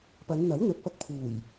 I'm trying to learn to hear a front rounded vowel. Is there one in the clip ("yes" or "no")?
no